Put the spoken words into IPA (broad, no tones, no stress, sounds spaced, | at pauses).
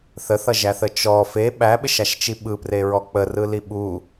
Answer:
θ ə θ ʌ ʒ æ θ ə t͡ʃ ɔ f e ɓ æ ɓ ɪ ʃ a ʃ t͡ʃ i ɓ ɯ p r e ɹ ɔ k͡p ə r ɯ l i ɓ u